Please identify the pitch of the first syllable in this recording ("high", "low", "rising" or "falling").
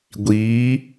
rising